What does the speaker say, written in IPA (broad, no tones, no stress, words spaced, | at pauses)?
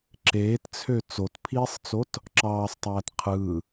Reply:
ǁeːtt͡sʰø t͡sotpʰiːsˤt͡sot | ǁɑːsˤtˤæːt qʰɯː